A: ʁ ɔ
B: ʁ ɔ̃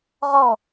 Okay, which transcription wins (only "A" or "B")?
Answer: A